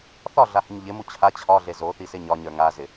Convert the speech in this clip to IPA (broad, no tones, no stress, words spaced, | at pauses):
θɒɮahɪɲ ʎɪmu t͡ɕʰa t͡ɕʰɒɮe zoθisɪ ɲɒɲə˞ ŋazɪ